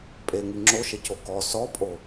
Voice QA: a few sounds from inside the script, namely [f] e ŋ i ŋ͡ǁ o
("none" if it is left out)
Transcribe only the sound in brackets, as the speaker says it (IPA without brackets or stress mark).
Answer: pʼ